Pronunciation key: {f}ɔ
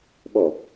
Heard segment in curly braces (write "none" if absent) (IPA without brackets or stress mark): ɓ